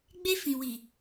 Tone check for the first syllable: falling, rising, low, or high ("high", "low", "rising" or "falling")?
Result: high